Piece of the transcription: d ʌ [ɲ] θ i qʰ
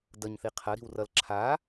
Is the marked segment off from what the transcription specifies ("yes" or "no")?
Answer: no